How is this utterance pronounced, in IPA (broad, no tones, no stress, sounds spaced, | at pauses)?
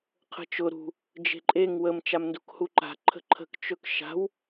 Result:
qʰ ə̤ t͡ʃ ʊ ɾ ṳ | d͡ʒ e̤ ǃʼ e ŋ w ə m t͡ʃ a m n d u k h u ǃ a̤ ǃʰ ə̤ ǃʰ ə̤ k t͡ʃ ɵ k ʃ a̤ w